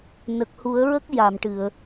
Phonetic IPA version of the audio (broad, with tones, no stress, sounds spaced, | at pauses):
n ə˨˩ k̚ h u˨˩˦ ə̯ ɹ ə˦˥ k̚ j a˨˩˨ m ʈ ɨ˨˩˨ ə̯